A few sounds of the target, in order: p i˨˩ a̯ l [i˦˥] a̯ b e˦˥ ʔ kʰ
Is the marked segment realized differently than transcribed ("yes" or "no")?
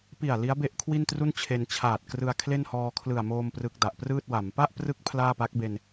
no